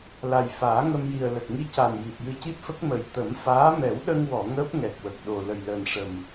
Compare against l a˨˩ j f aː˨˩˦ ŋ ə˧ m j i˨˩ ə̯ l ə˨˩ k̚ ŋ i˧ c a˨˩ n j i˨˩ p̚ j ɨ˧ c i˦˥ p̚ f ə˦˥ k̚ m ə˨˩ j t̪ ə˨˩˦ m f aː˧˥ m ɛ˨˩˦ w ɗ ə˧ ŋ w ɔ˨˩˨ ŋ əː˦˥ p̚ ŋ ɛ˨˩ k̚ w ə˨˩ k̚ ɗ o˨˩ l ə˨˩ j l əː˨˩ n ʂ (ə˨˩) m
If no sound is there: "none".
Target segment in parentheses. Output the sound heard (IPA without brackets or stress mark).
ə˨˩